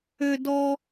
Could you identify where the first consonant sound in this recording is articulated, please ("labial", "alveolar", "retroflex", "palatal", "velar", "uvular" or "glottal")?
alveolar